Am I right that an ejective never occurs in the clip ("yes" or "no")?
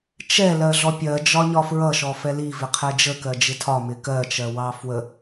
yes